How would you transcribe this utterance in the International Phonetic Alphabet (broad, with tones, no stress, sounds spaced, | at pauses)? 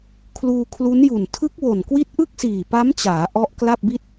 kʰ l uː˧ kʰ l u˦˥ n j u˨˩ n tʰ ɯ˦˥ k̚ w o˨˩ n k w i˦˥ t̚ ʔ ɯ˥˩ k̚ s iː˨˩ p a˦˥ m t͡ɕ aː˩˦ ʔ ɔ˦˥ ʔ k l a˥˩ p̚ b i˥˩ t̚